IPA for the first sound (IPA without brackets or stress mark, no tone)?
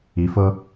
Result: i